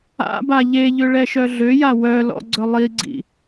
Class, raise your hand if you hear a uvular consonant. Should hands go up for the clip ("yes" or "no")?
no